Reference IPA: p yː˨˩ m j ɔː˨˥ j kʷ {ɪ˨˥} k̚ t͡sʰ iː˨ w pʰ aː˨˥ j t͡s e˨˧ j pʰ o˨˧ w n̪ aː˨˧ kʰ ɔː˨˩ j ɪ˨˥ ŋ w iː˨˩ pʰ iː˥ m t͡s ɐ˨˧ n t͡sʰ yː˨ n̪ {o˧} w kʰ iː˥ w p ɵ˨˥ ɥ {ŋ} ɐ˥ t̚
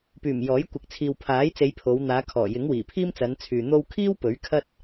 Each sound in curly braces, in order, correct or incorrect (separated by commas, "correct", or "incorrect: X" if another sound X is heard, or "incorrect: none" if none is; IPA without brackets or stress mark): correct, correct, incorrect: kʰ